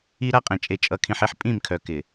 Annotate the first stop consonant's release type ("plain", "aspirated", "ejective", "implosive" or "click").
ejective